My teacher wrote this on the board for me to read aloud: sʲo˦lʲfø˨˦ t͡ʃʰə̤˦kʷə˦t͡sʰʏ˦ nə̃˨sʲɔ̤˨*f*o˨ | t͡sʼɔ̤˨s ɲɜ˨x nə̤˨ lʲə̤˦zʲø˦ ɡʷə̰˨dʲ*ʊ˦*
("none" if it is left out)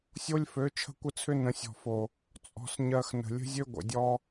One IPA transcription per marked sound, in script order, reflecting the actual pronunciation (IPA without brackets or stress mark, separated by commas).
f, ɔ˦